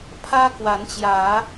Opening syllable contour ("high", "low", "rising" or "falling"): high